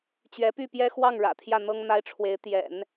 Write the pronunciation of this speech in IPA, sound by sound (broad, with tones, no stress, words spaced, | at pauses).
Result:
t͡ɕɥɛ˧˥py˥˩pjɛ˥ xwɑ˥˩ŋ ɻä̰˨˩t̪ʰjä˥˩n̪ɤ˥ŋ n̪a˥ɪ̯ʈ͡ʂʰwe˧˥ɪ̯ t̪jɛ̰˨˩˦n